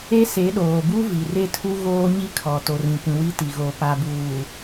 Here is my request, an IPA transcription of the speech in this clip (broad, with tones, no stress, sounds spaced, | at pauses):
e˦ s e˨˦ ɗ oː˨ b u˦ v i˨ r e˦ tʰ u˦ ɣ oː˦ ɲ i˦ kʰ ɔ˨ t o˨ r ĩ˨ kʷ ĩ˨ w i˦ t i˨ ɣ o˨ p a˨ b uː˨